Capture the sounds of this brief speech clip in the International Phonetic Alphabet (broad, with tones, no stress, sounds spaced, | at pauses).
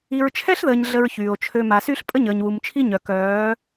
i˨ ɹ t͡ʃʰ ɛ˦ ɬ ð əː˨ ɲ ɮ ə˦ ɹ ç yː˨ o̯ t͡ʃʰ ø˦ m a˨ s y˦ ɬ pʼ ə˦ ɲ əː˨ ɲ w u˨ m t͡ʃʰ i˦ ɲ œ˨ k œː˨˦